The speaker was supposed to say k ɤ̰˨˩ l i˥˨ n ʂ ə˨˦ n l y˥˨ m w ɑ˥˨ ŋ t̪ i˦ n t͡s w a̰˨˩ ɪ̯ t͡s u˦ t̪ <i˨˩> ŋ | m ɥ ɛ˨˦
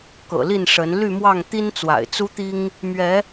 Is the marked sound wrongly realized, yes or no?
yes